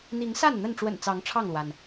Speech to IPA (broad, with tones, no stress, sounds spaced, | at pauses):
n̪ i˨˦ ŋ s a˥˨ n n̪ ə˥˨ n ʈ͡ʂ w ə̰˨˩ n t͡s ɑ˨˦ ŋ ʈ͡ʂʰ ɑ˥˨ ŋ l w a˩ n